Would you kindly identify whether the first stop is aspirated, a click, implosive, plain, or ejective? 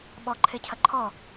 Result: implosive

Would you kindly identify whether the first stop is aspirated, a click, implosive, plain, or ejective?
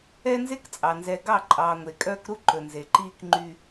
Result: plain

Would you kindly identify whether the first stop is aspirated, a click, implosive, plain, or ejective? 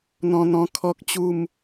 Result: aspirated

